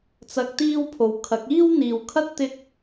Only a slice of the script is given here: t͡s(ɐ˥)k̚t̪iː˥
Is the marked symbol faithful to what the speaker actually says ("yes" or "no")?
no